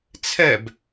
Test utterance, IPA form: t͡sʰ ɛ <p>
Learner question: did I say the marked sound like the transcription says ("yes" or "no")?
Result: no